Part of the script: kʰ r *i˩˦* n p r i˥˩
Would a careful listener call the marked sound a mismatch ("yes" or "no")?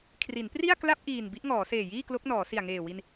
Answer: no